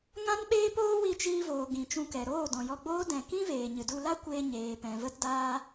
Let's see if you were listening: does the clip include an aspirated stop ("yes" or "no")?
no